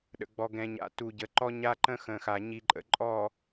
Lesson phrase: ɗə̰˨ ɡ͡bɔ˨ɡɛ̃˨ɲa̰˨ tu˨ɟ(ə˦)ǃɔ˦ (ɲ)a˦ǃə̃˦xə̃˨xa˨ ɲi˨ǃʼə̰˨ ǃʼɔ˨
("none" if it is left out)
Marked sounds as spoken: ə˨, ɲ

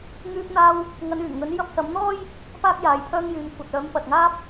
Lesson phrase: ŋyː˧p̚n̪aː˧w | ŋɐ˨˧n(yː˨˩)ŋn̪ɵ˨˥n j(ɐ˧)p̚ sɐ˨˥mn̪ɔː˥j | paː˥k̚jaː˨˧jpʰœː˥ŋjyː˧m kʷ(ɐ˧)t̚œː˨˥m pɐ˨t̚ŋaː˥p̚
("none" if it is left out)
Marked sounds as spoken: yː˨˩, ɐ˧, ɐ˨

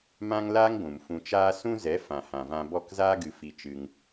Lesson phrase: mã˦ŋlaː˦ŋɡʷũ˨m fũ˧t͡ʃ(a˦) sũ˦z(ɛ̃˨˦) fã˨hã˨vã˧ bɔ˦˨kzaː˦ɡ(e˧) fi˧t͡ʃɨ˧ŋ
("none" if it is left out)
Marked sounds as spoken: aː˦, ɛ˨˦, ɨ˧

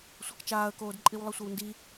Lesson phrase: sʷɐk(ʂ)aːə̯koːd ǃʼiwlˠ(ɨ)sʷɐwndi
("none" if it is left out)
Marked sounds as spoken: t͡ʃ, ɨ

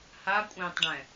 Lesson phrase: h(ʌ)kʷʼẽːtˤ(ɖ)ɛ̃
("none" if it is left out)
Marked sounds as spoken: a, ɖ

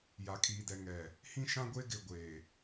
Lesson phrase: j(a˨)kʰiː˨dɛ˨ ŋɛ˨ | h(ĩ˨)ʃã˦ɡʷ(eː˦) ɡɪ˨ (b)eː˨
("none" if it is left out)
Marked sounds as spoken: a˨, ĩ˦, e˦, ɡʷ

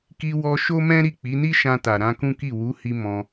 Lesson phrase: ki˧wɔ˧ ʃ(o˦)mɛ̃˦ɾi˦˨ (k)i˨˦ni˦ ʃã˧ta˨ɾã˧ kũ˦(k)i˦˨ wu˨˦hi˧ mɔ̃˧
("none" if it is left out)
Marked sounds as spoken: o˦, k͡p, k

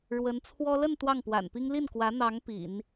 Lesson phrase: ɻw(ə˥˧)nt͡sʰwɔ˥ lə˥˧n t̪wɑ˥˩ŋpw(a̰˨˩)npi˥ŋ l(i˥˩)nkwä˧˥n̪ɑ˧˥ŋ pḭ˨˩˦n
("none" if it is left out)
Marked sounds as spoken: ə˧˥, a̰˨˩, i˥˩

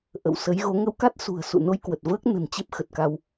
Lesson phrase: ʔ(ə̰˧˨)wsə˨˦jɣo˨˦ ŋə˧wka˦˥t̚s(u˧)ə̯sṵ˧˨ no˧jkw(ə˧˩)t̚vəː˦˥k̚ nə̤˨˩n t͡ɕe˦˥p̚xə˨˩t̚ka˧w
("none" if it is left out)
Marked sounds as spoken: ə̰˧˨, ṳ˨˩, ə˨˩

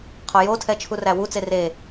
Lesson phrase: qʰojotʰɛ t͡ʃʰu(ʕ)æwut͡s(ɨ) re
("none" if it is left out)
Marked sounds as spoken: r, e

